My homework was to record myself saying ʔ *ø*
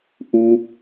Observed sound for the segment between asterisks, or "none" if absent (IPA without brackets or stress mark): u